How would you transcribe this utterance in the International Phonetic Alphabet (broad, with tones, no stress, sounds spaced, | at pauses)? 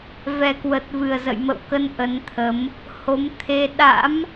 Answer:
v ɛ˨˩ k w ə˨˩ t̚ v ɨ˨˩ ə̯ z ə̰˧˨ j m ə̰˧˨ w k ə˨˦ n ʔ ə˨˦ n t̪ʰ ə˨˦ m | h o˨˦ m t̪ʰ e˧ ɗ a̰˧˥ m